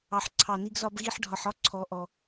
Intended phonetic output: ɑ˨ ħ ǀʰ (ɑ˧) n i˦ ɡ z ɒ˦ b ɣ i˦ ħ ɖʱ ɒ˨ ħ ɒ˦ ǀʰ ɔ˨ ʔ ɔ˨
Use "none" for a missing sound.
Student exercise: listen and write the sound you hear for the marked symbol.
ɑ˨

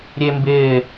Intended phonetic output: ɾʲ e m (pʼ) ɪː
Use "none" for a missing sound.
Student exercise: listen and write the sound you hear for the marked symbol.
b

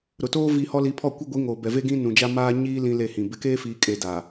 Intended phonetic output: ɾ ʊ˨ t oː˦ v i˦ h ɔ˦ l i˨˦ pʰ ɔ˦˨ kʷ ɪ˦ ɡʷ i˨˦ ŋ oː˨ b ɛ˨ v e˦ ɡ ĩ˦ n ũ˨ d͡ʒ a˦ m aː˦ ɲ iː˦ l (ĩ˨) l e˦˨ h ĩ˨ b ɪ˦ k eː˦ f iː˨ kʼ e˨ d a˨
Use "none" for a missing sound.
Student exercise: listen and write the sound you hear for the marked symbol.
ĩ˦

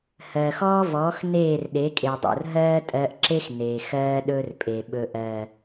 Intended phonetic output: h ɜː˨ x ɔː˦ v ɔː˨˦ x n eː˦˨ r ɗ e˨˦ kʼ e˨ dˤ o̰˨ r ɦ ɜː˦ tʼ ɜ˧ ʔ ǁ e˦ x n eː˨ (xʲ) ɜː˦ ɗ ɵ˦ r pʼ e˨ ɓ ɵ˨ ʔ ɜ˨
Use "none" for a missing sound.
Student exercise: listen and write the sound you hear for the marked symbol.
x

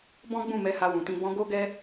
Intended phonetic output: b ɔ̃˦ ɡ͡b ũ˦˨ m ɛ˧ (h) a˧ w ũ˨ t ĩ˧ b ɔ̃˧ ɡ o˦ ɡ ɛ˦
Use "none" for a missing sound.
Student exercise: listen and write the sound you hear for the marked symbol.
h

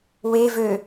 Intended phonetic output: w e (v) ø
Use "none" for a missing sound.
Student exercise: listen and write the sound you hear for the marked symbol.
v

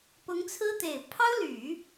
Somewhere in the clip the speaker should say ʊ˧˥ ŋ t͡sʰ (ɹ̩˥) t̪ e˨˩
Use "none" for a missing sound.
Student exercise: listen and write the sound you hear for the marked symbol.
ɹ̩˥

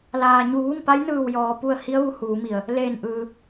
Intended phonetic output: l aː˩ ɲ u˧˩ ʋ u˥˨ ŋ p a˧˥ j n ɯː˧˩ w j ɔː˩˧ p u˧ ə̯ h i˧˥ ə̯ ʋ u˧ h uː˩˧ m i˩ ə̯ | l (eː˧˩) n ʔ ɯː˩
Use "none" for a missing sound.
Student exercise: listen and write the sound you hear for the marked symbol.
eː˧˩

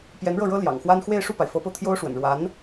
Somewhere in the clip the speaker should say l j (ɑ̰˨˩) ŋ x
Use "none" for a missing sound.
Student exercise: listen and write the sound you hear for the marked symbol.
ɑ̰˨˩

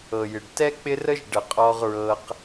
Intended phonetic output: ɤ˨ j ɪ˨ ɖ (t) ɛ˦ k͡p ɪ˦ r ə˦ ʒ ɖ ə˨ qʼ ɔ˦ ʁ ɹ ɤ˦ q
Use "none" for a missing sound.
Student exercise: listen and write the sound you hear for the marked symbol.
t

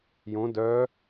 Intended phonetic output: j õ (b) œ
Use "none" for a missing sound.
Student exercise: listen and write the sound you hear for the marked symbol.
d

